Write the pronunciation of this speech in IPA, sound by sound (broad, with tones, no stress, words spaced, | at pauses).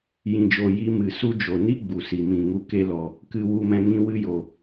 jĩ˨d͡ʒo˨ ji˧ mɨ˨su˦ d͡ʒo˨ni˦ ɡ͡bu˨si˨mĩ˨ ŋu˧ke˦lɔ˧ | kɨ˧wu˧mɛ̃˧ ŋĩ˦wɨ˦jo˧